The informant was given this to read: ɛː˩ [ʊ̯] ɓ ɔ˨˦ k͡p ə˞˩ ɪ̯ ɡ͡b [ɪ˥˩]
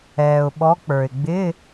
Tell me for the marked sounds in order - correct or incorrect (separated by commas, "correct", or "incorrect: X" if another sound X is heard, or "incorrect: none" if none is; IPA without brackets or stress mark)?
correct, incorrect: ɪ˧˥˧